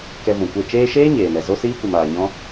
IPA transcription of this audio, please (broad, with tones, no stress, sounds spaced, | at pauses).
k ɛ˧ v ũ˨ kʷ e˦˨ t͡ʃ eː˧ ʃ eː˦ ɲ eː˨ n ɛ˨ z o˦ s iː˦ kʷ ɨ˨ m aː˨ ɲ ɔ̃˦